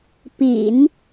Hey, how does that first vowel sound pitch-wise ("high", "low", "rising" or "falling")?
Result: low